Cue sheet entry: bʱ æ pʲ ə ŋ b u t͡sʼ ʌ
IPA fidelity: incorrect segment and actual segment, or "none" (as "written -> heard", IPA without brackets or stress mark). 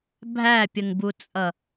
none